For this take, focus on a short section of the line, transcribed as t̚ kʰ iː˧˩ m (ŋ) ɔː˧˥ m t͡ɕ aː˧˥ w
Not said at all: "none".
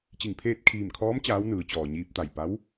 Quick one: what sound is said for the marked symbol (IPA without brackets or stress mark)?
kʰ